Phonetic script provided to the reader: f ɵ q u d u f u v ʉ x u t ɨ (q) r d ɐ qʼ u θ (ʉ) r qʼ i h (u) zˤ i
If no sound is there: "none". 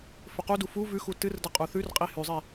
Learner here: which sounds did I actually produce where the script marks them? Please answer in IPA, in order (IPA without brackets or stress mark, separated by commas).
none, ʉ, ʉ